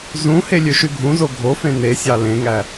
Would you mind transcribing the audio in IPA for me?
z ũ h e lʲ ø ʃ y ɡʱ ũ z o ɡʱ o f ẽ n e sʲ ɑ l ẽ ŋ æ

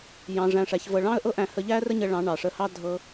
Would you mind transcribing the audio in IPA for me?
j ɑ̃˧ ʐ æ̃˧ ʂ æ˨˦ ç v ɤ˧ ɭ ɑ̃˦ ə̯ ʔ ɤ˦ ʔ æ̃˧ h ə˧ ʎ æ˦ r ə˦ ɲ ə˧ ɭ ɑ̃˨˦ ɳ ɑ˨ ʂ ə˧ h ɑ˦ dʱ ɤ˧

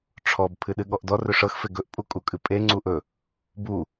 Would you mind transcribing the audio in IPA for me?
ʈ͡ʂʰ ɔ b pʰ ɨ ɗ ɨ ɠ ɔ ʔ d ɔ r ɵ ʂ ɤ x f e ɡ ɵ ʔ pʼ u kʼ u kʼ ɨ pʼ e ŋ͡ǀ u ʔ ɵ | b u

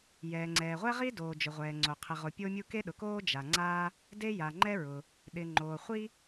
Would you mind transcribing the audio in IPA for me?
j ɛː˩ ŋ͡ǀ ɛː˩ ʁʷ ɛ˥ ʁ i˥ d oː˩ d͡ʒ ʊ˩ ʁʷ ɛː˩ ŋ͡ǀ o˩ qʰ ɪ˩ ʁ o˩ pʲ o˥ mʲ u˥ k e˥ ɗ ʊ˩ k oː˥ d͡ʒ a˩ ŋ͡ǀ aː˥ | d e˥ j a˩ ŋ͡ǃ ɛ˥ ɹ ʊ˩ | ɗ ɪ˩ ŋ͡ǃ oː˩ χʷ i˥

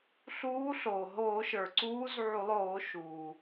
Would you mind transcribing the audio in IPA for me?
ɬ uː˧˥ ɬ oː˩ ɦ oː˧˩˧ ʃ ə˞˩ ǀ uː˧˥ z ʕ u˧˩˧ lˠ oː˧˩˧ ʃ uː˩

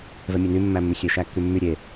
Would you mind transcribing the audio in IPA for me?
v ɛ mʲ ɛ n y mː æ mː y xʲ e ʃ æ kː y mː y ɾʲ e

